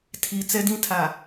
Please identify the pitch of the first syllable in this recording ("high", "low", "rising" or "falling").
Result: low